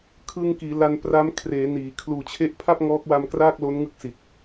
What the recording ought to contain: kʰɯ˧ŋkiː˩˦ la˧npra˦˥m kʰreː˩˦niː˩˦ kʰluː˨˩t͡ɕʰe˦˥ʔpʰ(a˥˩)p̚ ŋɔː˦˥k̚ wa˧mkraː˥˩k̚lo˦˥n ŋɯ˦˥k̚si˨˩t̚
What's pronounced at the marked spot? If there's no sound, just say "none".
a˥˩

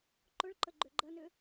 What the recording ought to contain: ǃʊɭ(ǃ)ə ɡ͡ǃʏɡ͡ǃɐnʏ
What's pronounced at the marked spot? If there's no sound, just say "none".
ǃ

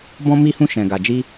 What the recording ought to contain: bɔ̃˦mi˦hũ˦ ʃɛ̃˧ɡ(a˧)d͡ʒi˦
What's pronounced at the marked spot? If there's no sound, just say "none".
a˧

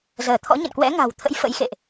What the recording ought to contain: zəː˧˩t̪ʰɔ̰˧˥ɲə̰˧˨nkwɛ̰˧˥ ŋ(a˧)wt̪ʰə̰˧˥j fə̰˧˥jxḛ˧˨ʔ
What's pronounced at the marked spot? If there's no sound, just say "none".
a̤˨˩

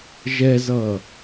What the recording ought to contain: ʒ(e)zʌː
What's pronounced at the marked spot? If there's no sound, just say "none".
ɛ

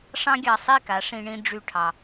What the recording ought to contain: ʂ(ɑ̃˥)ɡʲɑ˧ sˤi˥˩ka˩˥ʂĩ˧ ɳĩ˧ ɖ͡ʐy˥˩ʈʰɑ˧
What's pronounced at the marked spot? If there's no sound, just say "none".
ɑ̃˥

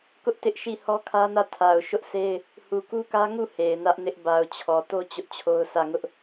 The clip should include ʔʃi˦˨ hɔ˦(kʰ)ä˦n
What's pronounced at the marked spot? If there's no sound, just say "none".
kʰ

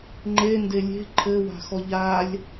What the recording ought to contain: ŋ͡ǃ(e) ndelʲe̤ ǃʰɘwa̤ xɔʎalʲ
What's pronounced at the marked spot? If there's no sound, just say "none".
e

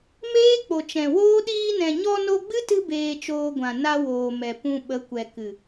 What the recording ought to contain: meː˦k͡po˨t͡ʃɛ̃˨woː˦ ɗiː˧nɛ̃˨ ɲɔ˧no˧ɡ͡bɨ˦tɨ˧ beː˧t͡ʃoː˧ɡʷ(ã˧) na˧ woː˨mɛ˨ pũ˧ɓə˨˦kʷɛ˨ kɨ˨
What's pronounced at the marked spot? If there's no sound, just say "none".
ã˨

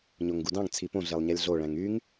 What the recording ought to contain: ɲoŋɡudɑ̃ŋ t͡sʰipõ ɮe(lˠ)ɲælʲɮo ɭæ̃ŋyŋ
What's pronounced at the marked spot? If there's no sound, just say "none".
lˠ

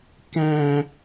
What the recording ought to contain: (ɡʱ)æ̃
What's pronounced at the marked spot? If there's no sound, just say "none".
k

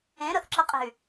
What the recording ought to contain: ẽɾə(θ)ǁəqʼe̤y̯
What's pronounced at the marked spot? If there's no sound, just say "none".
θ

